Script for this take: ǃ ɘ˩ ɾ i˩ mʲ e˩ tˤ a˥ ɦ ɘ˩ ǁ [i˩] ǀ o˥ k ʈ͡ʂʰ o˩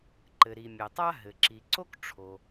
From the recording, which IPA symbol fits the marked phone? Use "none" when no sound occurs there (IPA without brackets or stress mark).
i˩